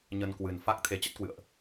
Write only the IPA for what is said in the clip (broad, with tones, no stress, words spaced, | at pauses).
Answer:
ɲə˧nkwɨ˨˩n fa˦˥k̚ t̪ʰe˨˦t͡ɕə˦˥t̚kwɨ̰˧˨ə̯ʔ